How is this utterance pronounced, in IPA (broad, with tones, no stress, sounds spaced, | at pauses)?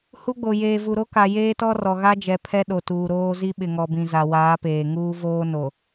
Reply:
h u˦ ɡ͡b o˨ j eː˨ v u˨ ɾ o˦ k a˨ j eː˦ t ɔ˦ r ɔ˨ ɣ a˦ d͡ʒ ɛ˨ pʰ ɛ˦ ɗ o˨ t uː˨ ɾ oː˦ z i˦ ɓ ɪ˨ ŋ ɔ˨ b ĩ˨ z a˨ w aː˨˦ p eː˨ ŋ uː˦ v oː˦ n o˨